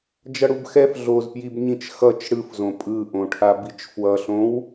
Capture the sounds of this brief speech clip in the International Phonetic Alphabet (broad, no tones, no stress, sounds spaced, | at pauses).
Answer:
d͡ʒ ʌ ɽ u b x ɛ f ɮ o z p j i b ɲ ĩ t͡ʃ x ʌ t͡ʃ ɽ ɯ f z õ pʼ ɯ ʔ õ ʈʰ a b i t͡ʃ f w ʌ ɬ õ w